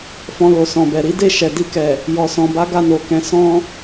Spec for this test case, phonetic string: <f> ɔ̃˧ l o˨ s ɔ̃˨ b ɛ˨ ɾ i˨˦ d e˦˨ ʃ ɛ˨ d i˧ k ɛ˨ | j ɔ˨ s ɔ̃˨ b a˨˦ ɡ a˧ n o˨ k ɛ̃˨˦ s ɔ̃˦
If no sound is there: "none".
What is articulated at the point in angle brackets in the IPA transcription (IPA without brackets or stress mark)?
f